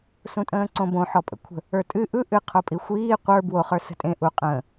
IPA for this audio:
s ũ tʼ ə̃ː ǀ õ b õ ħ ɔ pʼ ə̰ kʷʰ ə̤ | ə˞ tʼ ɨ ʔ ɯ ʔ ɨ qʰ o pʼ i xʷ iː qʷ ə˞ b w o χ ə˞ s ə̤ tʼ ẽ ʔ u qʼ ə̃ː

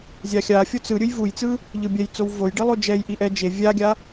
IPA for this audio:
zʲ a xʲ a fʲ o t͡s ɯ ɾʲ ɯ j v u j t͡s ɯ | ʎ ɯ bʲ ɛ j t͡s o w v o j ɖ i lˠ o d͡ʒ ɛ j ʔ i ʔ ɛ d͡ʒ e vʲ a ɡʲ a

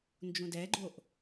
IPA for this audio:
n d͡ʒ ũ d ɛ ɡ͡ǃ o ʔ

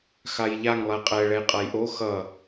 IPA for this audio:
x a j ʎ a ŋ lˠ ɛ qʼ ɛ ɭ ɛ j qʼ ɐ j ʔ o x ʌ

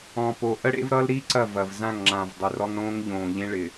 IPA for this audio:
ɔ̃˨ p o˨ ʔ ə˦ ɽ ḛ˦ v ɾ ʌ˦ l ɾ i˦ ǀ ɐ˦˨ v ɐ˨ v z ã˦˨ ŋ ŋ͡ǁ ã˨ v dˤ ɪ˨ r ɔ˦ ŋ ɽ õː˦ ŋ ʎ õː˨ ʎ ẽ˦ ɭ ɪ˨

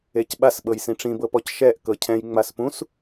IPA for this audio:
e c ɓ a s ɓ ɤ j s ĩ ʈ͡ʂ ĩ b ɤ p ɔ c ʃ ɛ ʔ k ɤ cʰ ɛ̃ j ŋ͡m a s p ũ s

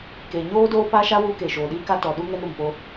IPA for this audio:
k eː˨ ɲ oː˦ d oː˦ p a˦ ʃ a˦ w uː˦ k e˨ ʃ oː˨ ɗ iː˦ k a˦ t ɔ˨ ɗ u˦ ŋ ɛ˦ n ɾ u˨ m p o˦

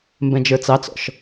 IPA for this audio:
m b ɛ̃ d͡ʒ ə˞ t͡s ɑ t͡s ɔ̰ ʃ

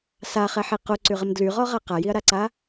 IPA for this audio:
s a χ ɛ ħ i q o ǀ y ʁ ə m d l y ʁ ɔ ʁ a q a j i ɐ̯ ɾ a ǀ a

